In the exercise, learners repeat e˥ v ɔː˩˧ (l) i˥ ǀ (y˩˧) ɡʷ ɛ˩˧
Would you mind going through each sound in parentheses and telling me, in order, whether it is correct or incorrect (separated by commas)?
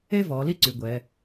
correct, correct